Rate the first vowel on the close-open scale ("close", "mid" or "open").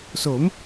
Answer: mid